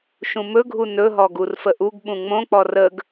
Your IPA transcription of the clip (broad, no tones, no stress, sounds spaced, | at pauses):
ʃ ũ m ɵ ɡʱ u n ɵ ɦ ɔ ɡ u r f ə ʔ u ɡ ɓ ũ ŋ͡m õ k͡p ɔ r ə ɡ